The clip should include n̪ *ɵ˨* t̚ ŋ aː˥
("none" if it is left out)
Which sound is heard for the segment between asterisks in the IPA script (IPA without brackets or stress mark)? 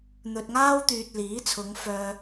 ɵ˨